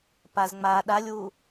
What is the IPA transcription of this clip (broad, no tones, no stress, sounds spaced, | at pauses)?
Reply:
p a z ŋ͡m a ɗ a lʲ w u